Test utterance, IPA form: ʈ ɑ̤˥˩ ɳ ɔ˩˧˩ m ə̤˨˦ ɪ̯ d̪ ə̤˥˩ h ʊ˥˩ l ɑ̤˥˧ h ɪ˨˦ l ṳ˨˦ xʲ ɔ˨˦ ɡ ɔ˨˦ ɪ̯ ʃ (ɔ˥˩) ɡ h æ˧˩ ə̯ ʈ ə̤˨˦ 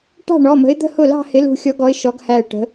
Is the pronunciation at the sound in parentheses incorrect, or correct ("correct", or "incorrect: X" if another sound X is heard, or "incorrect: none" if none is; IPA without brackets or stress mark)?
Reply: incorrect: ɔ˨˦